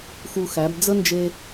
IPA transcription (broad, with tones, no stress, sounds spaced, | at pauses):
x u˧ x æ˩˧ b d͡z ə˥ n d͡ʒ e˧